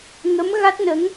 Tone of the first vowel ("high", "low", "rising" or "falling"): rising